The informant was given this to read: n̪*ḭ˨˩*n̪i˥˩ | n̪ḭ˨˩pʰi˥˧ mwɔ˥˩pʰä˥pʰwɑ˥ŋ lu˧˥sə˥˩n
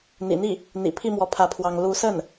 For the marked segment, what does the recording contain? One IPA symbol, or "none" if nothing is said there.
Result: ḭ˨˩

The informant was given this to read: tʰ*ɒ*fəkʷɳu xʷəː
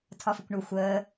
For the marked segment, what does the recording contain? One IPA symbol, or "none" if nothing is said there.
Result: ɒ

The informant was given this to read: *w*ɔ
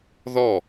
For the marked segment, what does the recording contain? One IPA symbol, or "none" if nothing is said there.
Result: ð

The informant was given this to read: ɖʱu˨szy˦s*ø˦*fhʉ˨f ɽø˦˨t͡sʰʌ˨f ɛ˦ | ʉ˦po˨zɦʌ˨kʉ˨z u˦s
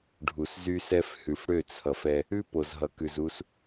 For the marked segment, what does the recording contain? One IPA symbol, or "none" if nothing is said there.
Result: ɛ˦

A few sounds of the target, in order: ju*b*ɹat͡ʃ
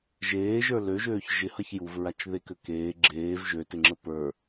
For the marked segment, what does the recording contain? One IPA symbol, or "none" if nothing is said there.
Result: v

